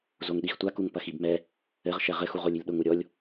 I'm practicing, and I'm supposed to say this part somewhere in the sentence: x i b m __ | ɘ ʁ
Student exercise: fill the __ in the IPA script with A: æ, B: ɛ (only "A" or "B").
B